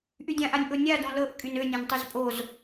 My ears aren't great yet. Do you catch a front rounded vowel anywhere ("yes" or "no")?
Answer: yes